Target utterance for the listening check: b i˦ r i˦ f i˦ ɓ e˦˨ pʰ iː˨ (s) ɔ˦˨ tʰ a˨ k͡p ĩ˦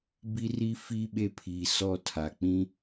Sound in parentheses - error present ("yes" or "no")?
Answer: no